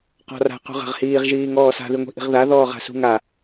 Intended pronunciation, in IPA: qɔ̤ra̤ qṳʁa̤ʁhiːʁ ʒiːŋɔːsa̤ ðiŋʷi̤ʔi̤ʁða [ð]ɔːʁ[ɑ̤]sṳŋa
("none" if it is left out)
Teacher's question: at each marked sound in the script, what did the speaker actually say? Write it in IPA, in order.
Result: ð, a̤

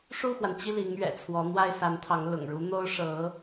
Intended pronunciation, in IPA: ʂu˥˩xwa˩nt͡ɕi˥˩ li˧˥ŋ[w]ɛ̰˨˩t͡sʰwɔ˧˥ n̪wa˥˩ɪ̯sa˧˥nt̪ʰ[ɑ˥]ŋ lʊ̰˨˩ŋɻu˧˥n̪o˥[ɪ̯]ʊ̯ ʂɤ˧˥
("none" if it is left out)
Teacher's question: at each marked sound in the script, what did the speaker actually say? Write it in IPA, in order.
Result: ɥ, ɑ˧˥, none

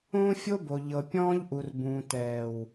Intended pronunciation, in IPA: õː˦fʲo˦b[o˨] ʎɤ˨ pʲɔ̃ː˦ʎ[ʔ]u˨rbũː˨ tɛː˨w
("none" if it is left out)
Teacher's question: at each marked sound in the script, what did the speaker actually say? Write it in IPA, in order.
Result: o˨, ʔ

